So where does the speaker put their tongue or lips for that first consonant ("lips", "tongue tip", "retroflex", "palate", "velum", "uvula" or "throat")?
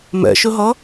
lips